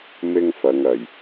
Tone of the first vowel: high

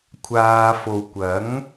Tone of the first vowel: low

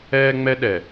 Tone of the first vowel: high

